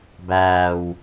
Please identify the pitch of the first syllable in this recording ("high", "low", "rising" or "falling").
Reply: low